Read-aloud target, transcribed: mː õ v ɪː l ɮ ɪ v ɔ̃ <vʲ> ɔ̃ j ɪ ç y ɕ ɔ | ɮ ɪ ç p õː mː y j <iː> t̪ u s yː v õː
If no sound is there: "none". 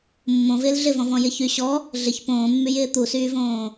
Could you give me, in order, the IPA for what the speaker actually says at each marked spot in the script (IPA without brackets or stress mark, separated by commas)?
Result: v, ɪː